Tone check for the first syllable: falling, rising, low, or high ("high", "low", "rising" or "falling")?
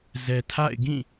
low